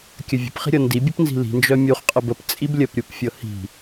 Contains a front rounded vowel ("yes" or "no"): yes